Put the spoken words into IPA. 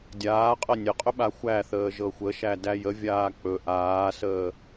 dʲaːqʼɤ nʲəqʼɵ ɓaxʷæθəː ʒɤxʷəʃæ dæjəvʲaː k͡pɵ ʔaːsəː

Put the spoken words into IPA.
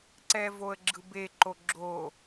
ǀɛvoə̯ɡ͡ǁɯbe ǃoɡ͡ǁo

